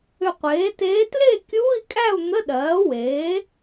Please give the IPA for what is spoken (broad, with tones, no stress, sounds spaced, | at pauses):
ʏ˧˩ qʷ eː˩˥ t eː˧˥ t l e˥˨ kʲ uː˧˥˧ i̯ kʼ æ˥˨ u̯ n̪ ə˧˥˧ ɗ ɜː˩˥ w eː˩˥